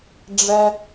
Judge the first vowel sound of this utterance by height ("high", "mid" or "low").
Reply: mid